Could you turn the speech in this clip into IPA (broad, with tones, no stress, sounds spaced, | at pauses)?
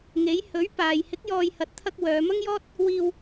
ŋ e˨˥ j h ɵ˨˥ ɥ p aː˨ j h ɪ˨˥ k̚ j ɔː˨ j h ɐ˨ t̚ t̪ʰ ɐ˧ k̚ w œː˨˧ m ɐ˥ ŋ j ɔː˥ t̚ | w iː˧ w